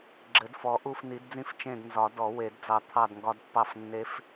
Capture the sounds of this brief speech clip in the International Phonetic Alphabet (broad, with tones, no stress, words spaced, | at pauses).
ɡ͡ǁɘ˨˩˦d fɔ˨˥ʔu˥˧fni˨˥dd͡zĩ˥˧f t͡ʃẽ˥˧d nzɒ˨˩˦ dɔ˨˩˦we˨˩˦dd͡zɑ˧˩ t̪ʰɑ˥˧dŋɡɒ˦˥d pːɑ˥˩f nːe˦˥f